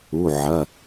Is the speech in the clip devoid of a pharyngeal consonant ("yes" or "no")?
no